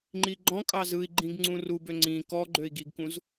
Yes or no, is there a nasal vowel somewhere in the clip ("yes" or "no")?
yes